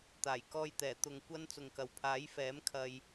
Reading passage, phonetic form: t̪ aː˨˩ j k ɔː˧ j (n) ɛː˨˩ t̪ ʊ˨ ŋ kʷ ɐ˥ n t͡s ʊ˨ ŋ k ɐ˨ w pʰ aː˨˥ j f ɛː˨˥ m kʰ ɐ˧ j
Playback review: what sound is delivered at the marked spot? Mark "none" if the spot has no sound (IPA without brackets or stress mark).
t̪